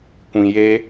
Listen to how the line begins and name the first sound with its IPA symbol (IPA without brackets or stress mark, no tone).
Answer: kʷ